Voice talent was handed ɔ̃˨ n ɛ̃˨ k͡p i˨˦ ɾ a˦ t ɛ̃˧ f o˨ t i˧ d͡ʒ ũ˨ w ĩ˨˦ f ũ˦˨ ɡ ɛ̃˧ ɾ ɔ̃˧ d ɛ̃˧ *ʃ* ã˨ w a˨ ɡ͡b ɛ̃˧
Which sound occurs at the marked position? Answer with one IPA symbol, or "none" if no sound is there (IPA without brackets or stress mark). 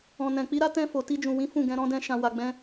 ʃ